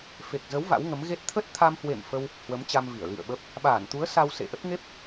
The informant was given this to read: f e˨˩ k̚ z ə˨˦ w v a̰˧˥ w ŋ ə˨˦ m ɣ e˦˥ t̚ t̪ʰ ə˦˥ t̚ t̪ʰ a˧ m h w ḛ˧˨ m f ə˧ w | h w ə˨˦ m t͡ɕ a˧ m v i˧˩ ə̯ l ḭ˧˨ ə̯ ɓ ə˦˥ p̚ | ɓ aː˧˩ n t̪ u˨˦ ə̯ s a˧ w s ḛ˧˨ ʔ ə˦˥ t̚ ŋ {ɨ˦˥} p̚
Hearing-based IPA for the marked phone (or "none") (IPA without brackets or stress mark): e˦˥